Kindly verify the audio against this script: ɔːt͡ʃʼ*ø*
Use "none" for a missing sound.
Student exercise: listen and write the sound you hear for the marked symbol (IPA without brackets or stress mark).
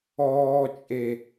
e